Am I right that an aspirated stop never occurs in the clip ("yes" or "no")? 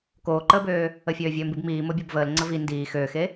yes